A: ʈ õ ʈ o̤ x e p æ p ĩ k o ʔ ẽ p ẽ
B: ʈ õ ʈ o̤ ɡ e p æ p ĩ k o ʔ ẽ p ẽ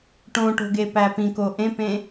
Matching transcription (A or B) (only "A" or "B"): B